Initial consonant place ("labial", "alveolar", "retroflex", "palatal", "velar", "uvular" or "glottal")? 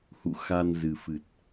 glottal